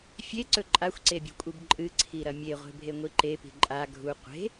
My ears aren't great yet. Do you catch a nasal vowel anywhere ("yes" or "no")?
no